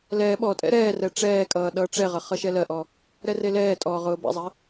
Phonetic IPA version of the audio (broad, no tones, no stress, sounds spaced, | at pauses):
l ɛ ɓ ɔ tʼ ɛ̰ ɾ ɛː r ɛ ʈ͡ʂ ɛː kʼ ʌː ɗ ʌː ʈ͡ʂ ɛ ʁ ʌ χ ʌ ʃ ɛ l ɜ ʔ ɔ | ɾ ɛ r e l ɛː tʼ ɔː ʁ ʊː b ɛ̰ zˤ ɛ